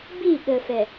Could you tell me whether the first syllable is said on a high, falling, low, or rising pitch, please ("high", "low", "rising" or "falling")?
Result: falling